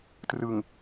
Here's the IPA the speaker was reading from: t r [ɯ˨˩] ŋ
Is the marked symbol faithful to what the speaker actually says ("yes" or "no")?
yes